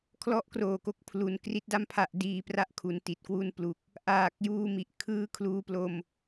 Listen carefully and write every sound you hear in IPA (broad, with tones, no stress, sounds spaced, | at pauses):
kʰ l ɔ˦˥ ʔ k r oː˨˩ k o˦˥ k̚ pʰ l u˩˦ n k r i˦˥ t̚ d a˥˩ m pʰ a˦˥ ʔ d iː˧ p r a˥˩ ʔ kʰ u˩˦ n t i˨˩ t̚ k w u˧ n p l u˨˩ k̚ | ʔ aː˨˩ k̚ j uː˧ m i˨˩ ʔ kʰ ɯː˧ kʰ l uː˧ p l o˧ m